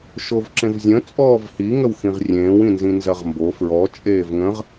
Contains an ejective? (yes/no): yes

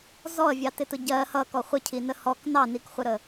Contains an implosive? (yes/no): no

